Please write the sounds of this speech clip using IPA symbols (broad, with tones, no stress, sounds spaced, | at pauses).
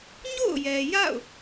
ɲ o̰˦˨ ʊ̯ j ɛ˨ j a̰˦˨ ʊ̯